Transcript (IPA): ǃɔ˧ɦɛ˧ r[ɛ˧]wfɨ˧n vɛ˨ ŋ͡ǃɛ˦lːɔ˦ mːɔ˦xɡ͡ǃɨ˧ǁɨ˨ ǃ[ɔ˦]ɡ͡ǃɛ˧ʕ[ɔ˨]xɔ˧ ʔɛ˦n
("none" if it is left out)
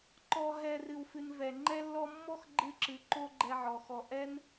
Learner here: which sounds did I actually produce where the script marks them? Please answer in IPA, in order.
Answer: ɨ˧, o˦, ɔ˨

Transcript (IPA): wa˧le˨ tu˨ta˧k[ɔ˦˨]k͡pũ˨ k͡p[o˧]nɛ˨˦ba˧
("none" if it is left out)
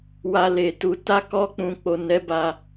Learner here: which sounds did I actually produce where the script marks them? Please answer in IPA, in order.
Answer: ɔ˧, o˨

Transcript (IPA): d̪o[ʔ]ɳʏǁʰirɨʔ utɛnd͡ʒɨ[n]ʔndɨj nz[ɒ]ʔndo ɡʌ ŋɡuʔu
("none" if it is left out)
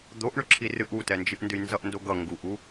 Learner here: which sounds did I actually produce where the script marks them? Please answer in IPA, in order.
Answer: ʔ, none, ʌ

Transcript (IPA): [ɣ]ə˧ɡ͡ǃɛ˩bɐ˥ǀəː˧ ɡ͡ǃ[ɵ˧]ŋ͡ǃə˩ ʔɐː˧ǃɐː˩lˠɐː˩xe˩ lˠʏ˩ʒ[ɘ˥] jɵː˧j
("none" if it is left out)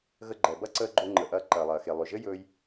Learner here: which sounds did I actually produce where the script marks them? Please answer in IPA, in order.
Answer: ɣ, ɵ˧, ɘ˥

